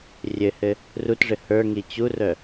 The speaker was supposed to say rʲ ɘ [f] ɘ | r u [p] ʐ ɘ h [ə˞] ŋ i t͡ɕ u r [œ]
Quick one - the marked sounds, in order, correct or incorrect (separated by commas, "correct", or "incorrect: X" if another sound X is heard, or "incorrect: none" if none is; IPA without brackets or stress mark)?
incorrect: h, incorrect: t, correct, correct